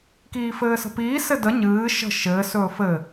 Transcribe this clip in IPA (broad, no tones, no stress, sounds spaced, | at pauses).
k iː f ɘː s ə̤ p iː s ɘ d ə ɲ ɨː ʃ ə̤ ʃ ɘː s ɵː f ɘ